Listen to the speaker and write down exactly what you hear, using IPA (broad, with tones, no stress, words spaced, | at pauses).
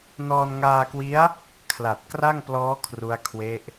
nɔː˧nŋaː˧kwi˦˥a̯ | kʰla˨˩t̚ kra˥˩ŋplɔː˦˥ kʰru˦˥a̯kʰwe˦˥ʔ